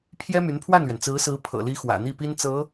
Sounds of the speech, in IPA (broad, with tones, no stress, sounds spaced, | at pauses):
pʰ j ɛ˥ m y˧˥ n pʰ w a˥˩ n l ɥ ɛ˩ n t͡s ɹ̩˧˥ s ɹ̩˧˥ pʰ ɤ̰˨˩ l i˧˥ x w ä̰˨˩ n̪ i˥˩ p i˥ n t͡s ɤ˧˥